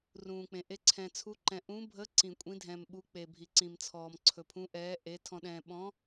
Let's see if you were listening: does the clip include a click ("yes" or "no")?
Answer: yes